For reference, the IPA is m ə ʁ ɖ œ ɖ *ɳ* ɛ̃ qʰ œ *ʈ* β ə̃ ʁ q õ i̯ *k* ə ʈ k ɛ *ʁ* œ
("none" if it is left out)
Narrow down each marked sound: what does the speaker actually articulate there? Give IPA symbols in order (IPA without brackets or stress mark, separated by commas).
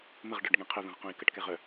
ŋ, none, k, ʁ